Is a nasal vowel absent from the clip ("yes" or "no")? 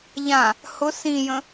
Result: no